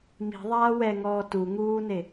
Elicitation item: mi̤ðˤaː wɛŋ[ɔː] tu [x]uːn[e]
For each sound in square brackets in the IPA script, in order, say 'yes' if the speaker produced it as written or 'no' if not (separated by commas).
yes, no, yes